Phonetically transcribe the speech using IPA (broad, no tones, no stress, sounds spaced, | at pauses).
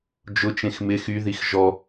d͡ʒ ʊ t͡ʃ ẽ x m ɪ x y ð i x ʒ ɔ